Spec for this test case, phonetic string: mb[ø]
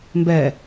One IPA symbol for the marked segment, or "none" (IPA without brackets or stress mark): ɛ